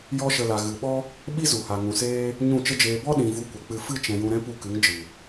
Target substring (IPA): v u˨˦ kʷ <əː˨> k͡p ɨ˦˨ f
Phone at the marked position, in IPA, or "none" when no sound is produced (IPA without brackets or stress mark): ə˨